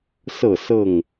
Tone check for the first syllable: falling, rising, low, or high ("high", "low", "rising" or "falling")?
falling